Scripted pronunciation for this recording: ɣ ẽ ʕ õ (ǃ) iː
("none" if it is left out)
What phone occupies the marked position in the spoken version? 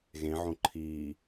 ǃʰ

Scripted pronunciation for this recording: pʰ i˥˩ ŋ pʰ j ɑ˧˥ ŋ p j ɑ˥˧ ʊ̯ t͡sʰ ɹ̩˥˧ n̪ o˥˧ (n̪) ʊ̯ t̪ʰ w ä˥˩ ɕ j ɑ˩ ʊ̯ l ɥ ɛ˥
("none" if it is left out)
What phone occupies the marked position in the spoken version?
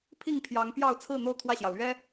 none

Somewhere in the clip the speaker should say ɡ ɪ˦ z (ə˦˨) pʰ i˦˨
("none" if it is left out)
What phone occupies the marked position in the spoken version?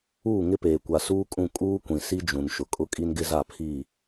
a˦˨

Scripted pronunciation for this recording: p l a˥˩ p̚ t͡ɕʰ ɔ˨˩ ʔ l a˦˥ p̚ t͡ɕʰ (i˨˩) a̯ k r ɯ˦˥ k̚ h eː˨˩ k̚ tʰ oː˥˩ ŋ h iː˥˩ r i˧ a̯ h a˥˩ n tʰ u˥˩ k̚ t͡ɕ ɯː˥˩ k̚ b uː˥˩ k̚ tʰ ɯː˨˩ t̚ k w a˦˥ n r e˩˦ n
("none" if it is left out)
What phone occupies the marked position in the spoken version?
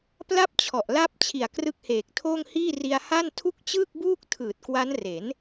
i˨˩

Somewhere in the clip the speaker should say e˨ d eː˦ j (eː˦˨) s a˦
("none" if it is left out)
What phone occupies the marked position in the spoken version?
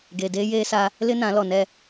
eː˦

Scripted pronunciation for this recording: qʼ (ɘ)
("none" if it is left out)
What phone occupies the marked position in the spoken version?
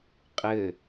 ɘ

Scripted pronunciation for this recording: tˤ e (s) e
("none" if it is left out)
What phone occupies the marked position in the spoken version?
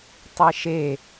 ʃ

